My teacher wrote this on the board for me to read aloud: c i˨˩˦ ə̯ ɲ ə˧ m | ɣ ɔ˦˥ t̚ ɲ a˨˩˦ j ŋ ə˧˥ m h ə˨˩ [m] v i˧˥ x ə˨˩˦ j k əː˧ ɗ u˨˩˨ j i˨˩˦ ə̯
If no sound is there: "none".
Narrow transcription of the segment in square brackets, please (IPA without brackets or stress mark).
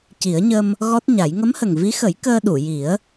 ŋ